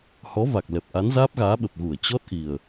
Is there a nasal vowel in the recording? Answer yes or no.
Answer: no